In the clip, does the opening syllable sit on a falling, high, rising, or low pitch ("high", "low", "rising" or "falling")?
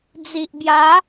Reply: low